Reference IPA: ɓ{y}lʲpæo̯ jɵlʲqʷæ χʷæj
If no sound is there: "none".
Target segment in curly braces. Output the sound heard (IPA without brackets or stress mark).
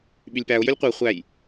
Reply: y